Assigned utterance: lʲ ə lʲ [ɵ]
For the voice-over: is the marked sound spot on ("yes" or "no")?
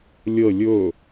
yes